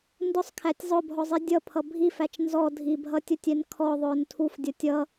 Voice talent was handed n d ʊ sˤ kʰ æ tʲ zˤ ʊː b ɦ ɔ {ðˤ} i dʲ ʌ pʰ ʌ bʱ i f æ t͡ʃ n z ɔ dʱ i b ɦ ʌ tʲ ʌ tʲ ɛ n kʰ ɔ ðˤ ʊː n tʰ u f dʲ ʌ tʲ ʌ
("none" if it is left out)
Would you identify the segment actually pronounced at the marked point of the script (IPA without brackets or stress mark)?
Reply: zˤ